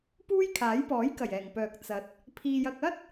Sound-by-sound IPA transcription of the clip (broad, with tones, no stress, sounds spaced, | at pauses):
p uː˥ j kʰ aː˨˥ j p ɔː˨˥ j k ɐ˨˩ j ɛː˨˩ ŋ p œː˨ k̚ t͡s ɐ˨˥ t̚ | pʰ iː˧ j ɐ˧ k̚ ɐ˥ t̚